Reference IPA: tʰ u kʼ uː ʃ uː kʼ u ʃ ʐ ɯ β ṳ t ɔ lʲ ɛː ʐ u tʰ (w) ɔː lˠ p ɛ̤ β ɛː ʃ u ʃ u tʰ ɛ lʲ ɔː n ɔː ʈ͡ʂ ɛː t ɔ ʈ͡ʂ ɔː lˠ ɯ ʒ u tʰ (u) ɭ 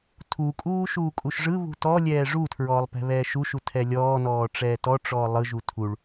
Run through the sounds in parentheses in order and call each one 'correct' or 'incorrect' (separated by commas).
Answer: incorrect, correct